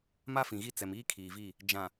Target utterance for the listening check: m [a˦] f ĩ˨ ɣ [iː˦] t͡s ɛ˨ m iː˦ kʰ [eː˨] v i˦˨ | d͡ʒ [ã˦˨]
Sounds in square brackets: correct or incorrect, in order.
correct, incorrect, incorrect, incorrect

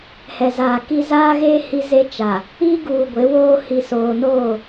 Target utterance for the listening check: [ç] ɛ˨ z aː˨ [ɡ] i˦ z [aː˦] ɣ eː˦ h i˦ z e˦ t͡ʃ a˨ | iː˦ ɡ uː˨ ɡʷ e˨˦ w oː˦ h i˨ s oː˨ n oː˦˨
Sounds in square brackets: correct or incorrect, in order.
incorrect, incorrect, correct

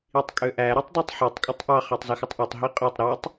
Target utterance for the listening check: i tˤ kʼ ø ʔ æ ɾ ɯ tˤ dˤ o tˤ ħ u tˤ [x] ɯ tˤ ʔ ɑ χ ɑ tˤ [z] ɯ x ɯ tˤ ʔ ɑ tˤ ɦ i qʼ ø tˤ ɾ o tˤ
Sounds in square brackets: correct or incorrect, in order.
incorrect, correct

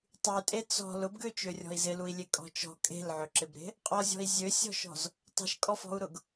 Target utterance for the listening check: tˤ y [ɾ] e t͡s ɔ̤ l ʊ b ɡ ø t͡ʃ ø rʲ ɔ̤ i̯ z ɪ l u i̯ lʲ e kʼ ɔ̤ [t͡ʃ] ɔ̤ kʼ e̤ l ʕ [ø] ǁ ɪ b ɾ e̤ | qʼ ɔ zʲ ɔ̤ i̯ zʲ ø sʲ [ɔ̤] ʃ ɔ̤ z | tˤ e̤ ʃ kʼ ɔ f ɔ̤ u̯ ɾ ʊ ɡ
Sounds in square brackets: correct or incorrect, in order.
incorrect, correct, correct, correct

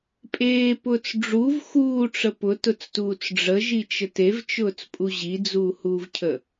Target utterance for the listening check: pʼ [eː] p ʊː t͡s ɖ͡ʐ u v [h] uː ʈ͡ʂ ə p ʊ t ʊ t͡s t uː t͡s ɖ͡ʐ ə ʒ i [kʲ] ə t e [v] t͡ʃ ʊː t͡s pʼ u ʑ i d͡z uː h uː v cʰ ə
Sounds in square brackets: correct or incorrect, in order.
correct, incorrect, incorrect, correct

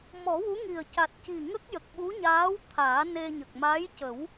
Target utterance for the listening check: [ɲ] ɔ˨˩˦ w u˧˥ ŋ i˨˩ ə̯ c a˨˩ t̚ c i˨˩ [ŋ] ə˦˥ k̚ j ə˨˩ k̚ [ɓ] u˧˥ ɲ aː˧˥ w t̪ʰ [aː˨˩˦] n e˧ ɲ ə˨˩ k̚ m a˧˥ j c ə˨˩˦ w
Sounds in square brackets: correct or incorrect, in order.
incorrect, correct, correct, correct

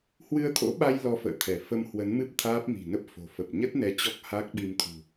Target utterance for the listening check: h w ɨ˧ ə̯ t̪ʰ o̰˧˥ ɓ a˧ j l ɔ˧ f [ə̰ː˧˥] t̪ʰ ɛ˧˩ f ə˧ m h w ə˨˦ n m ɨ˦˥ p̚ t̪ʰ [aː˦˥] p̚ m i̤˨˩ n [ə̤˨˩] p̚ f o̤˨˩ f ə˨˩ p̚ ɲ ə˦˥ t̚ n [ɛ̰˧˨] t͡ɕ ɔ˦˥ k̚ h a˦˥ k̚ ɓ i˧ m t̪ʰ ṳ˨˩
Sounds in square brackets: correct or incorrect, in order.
incorrect, correct, incorrect, incorrect

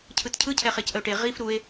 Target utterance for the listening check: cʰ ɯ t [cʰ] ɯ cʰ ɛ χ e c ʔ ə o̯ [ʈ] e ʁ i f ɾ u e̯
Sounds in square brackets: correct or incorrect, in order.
correct, correct

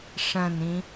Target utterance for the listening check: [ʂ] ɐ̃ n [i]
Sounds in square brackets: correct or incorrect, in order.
correct, incorrect

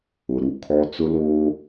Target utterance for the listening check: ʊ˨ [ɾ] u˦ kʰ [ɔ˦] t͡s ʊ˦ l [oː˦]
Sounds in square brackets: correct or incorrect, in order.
correct, correct, correct

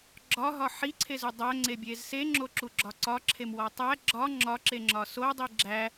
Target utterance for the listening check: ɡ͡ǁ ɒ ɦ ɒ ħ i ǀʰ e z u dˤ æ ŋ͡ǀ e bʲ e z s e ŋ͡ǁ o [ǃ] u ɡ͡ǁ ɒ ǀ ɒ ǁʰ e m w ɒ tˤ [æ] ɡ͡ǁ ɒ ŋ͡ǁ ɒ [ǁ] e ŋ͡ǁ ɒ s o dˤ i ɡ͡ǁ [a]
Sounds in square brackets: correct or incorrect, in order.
incorrect, correct, correct, incorrect

